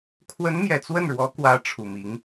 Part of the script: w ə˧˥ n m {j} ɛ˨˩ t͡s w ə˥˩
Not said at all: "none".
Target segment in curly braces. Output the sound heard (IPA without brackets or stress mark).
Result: j